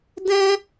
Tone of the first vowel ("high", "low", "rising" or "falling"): high